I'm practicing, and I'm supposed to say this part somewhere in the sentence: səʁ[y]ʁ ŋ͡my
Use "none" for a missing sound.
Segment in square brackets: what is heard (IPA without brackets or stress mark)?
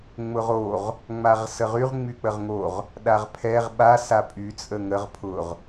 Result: y